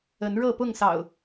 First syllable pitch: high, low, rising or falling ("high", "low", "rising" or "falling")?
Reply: rising